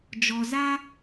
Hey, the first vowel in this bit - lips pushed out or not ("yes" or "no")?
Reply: yes